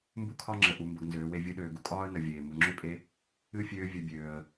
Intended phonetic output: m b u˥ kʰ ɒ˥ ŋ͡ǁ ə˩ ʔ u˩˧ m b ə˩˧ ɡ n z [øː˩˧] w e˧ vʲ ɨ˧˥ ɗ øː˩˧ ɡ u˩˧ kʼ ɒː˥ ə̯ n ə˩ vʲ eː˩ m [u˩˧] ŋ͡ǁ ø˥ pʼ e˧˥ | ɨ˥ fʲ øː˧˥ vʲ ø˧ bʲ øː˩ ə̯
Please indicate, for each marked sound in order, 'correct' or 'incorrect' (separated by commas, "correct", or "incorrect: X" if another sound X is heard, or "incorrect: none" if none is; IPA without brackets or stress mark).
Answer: correct, correct